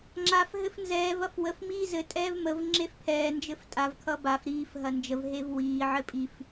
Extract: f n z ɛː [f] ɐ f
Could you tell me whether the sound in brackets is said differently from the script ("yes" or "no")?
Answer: yes